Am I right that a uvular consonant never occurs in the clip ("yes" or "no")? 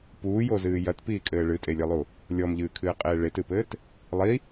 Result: no